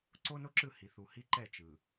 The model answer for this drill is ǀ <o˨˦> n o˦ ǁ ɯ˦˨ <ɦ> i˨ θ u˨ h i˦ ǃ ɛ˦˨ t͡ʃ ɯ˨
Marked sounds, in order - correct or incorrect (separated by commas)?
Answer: incorrect, incorrect